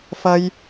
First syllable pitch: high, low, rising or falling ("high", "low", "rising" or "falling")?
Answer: high